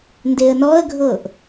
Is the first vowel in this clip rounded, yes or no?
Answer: no